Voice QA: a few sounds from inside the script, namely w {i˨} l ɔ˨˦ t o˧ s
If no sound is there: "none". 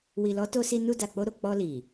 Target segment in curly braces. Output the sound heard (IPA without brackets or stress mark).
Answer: i˨